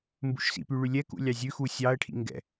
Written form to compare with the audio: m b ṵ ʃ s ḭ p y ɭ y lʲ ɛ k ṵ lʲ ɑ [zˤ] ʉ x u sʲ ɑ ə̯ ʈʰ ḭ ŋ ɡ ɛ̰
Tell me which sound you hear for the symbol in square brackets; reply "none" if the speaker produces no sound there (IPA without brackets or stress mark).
zʲ